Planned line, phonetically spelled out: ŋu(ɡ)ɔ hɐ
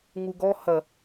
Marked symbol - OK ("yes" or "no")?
yes